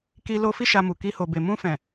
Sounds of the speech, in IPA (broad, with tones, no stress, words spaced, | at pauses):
ki˧lo˧ fi˦ʃa˧mu˨ki˧ ho˨be˨ mũ˧fɛ̃˨